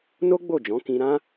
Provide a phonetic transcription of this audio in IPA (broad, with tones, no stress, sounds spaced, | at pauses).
n o˦ ɡ͡b o˦˨ d͡ʒ ɔ̃˨˦ k ĩ˧ ɾ ã˦